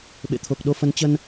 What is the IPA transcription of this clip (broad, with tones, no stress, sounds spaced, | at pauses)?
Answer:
ɓ ḛ˧˨ t̪ʰ o˨˩ k̚ ɗ o˧ f ə˨˦ n t͡ɕ ə˧ n